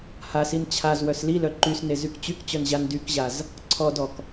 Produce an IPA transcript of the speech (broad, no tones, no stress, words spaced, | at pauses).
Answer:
hasin t͡ɕʰaz wœslilœ ǃysne zykt͡ɕykt͡ɕœn ʑandykʑaz | ǀʰɔdɔk